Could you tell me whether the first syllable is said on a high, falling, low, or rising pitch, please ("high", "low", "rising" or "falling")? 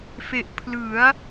low